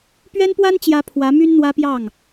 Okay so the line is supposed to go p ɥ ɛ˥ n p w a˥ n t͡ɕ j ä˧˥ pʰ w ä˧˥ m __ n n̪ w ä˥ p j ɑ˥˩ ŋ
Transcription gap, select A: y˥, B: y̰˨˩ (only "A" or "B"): A